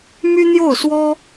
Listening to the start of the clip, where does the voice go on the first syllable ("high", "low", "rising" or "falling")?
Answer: high